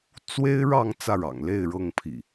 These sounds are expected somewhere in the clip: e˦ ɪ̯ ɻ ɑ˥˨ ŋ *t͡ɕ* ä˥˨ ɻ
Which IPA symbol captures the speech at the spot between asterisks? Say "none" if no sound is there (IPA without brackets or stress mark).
t͡s